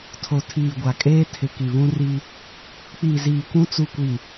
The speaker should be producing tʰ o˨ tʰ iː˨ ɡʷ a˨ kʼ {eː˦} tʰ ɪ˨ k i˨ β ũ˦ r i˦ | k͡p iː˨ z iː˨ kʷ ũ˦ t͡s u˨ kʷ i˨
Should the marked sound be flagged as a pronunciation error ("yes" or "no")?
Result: no